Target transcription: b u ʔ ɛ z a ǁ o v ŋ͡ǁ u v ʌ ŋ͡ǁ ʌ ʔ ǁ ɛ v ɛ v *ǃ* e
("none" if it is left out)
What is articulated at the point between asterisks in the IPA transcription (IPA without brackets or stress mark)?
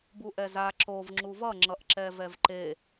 ǃ